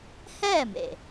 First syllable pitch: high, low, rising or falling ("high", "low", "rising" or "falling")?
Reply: falling